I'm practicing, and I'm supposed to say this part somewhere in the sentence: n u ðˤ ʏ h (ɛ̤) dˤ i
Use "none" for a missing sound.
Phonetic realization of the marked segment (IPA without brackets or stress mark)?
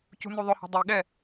ɛ̤